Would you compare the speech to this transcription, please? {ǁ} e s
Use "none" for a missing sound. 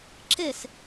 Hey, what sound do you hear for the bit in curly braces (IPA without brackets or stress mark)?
ǁ